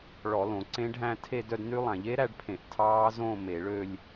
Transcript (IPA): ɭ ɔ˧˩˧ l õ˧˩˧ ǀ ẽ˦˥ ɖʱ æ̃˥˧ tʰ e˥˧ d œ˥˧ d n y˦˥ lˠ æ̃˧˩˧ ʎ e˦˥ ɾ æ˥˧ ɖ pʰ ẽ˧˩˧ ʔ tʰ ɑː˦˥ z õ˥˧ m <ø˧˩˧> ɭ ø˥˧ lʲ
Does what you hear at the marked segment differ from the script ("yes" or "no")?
yes